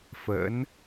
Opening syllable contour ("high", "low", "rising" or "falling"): rising